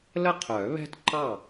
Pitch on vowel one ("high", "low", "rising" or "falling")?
falling